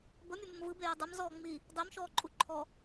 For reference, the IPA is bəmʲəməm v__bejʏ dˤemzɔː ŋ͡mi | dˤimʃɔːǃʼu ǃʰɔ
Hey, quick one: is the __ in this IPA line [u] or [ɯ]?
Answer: ɯ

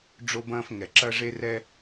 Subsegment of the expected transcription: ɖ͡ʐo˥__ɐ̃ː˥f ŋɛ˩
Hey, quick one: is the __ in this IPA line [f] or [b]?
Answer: b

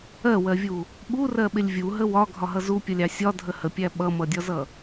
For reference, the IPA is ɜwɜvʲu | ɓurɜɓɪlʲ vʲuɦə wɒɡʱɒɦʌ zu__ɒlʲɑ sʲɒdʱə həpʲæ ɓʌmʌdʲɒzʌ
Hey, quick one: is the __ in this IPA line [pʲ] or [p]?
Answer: pʲ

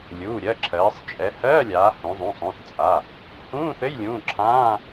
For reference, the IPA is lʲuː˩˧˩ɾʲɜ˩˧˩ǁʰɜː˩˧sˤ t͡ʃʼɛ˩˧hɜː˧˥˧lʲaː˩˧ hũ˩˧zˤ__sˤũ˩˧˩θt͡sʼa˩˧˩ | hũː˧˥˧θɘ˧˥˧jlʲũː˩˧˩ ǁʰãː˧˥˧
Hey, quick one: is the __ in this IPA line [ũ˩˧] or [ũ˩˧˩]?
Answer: ũ˩˧˩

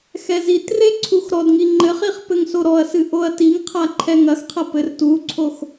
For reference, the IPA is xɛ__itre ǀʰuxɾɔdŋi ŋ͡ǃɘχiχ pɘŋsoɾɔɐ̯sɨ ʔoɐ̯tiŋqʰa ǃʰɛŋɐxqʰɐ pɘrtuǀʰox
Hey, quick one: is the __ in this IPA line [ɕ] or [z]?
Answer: z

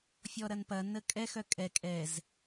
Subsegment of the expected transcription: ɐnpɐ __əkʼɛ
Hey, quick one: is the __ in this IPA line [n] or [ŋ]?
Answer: n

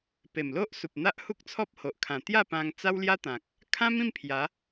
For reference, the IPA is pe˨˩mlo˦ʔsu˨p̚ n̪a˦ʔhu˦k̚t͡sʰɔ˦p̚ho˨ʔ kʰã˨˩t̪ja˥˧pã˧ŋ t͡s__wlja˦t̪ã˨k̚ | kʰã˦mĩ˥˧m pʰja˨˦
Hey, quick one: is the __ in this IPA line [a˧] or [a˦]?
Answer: a˦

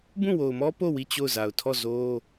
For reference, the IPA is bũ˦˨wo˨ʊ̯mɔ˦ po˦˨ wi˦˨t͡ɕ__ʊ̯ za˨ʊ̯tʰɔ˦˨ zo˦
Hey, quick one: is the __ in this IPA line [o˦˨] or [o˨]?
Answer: o˦˨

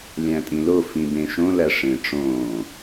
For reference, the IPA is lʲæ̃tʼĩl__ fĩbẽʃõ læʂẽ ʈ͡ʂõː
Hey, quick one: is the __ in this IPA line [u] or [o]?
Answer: o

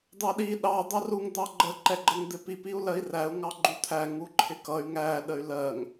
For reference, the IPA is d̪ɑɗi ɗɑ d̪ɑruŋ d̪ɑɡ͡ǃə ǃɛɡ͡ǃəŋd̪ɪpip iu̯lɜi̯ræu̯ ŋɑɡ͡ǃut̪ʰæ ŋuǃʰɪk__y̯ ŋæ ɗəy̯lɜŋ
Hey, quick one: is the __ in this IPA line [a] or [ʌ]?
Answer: ʌ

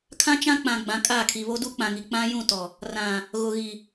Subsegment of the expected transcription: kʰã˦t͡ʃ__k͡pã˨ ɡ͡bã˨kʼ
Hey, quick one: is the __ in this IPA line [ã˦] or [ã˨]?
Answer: ã˦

